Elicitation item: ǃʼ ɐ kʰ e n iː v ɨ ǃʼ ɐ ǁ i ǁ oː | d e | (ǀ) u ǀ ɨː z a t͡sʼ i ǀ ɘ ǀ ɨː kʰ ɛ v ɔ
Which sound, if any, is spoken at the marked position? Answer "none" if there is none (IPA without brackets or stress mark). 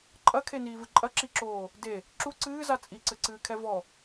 ǁ